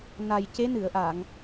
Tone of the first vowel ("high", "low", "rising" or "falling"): low